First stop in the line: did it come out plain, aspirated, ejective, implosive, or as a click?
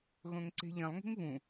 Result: click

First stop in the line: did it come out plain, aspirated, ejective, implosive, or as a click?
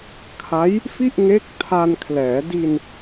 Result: aspirated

